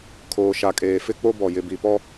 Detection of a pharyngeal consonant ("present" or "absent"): absent